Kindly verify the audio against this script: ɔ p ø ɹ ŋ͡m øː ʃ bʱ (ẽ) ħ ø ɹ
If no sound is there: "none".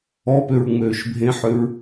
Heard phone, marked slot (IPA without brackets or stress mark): ẽ